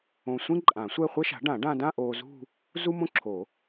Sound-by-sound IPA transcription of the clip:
õ˧ sʷ ĩ˥ ǃʼ ã˨˩˦ sʷ ɛ˥˧ χʷ ɛ˥ ʃ a̤˩˥ ɖ ã˨˩˦ ɖ ã˧ d ã˥˧ ʔ oː˧ z ṳ˥˧ | z u˥ m õ˥ ǁʰ o˨˩˦

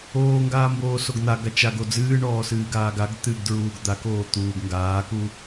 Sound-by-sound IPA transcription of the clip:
oː ŋ ɡ aː m b oː s o ɡ n̪ a ɡ a t͡ʃ a ɡ o d͡z ɨː ɳ ɔː s ɨː ɡ aː ɡ a ɡ t̪ ɨ ɡ d ɹ uː ɡ d̪ a k oː t̪ uː ɡ ŋ ɡ aː k u

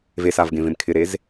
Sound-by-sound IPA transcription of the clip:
v e s a v ɡ ẽ v ẽ m kʰ ɪ ɾ e z

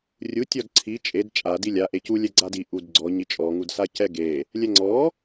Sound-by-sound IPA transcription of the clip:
rʲ u tʲ ɔ d ǀʰ i t͡ʃʼ e d t͡ʃʼ a d i lʲ a ʔ e c u lʲ ɛ ɡ͡ǀ a d i ʔ u d ɡ͡ǀ ɔ ɲ i t͡ʃʼ ɔ ŋ u d s a c ɛ ɡ e | lʲ ɛ ŋ͡ǀ ɔ

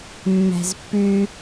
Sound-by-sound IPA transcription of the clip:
mː æ̤ z pː ʉ

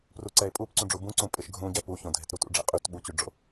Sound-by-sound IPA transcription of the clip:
p r u ǀ ɛ e̯ pʼ u p ǀ ũ ɖ͡ʐ u b ũ ǀ ũ pʼ ɪ ʃ ɡʱ ũ ɟ ɛ p u ç õ dʱ ɪ t ɾ u t ṵ ɖ͡ʐ ɛ̰ qʼ y t ɓ u t͡ɕ y ɖ͡ʐ o̰

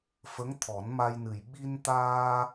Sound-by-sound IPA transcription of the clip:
f ə˧˥ ŋ t̪ʰ ɔ˨˩˦ n m a˧ j n ɨ˨˩ j ɓ i˧ n t̪ aː˧

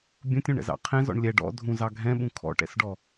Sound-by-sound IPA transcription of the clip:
bʲ ũ tʲ ũ ɳ ɛ̰ z ɑ̰ qʰ ɛ̃ z ɔ̰ ɳ lʲ ɛ ɖ ɔ̰ dʱ ũ z ɑ ɡʱ ɛ̃ ɓ ũ kʰ ɔ̰ ʈ ɛ̰ s ɖ ɔ

